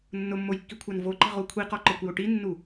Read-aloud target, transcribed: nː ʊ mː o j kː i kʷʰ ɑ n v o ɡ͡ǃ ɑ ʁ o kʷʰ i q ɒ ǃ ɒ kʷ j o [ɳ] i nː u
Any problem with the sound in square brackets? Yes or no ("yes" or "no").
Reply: yes